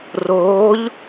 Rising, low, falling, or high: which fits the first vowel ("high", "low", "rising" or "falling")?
rising